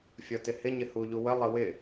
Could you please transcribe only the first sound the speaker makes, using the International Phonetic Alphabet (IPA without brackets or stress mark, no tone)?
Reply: fʲ